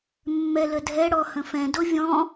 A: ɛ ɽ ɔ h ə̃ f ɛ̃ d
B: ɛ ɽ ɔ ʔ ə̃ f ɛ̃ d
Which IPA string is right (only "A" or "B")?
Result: A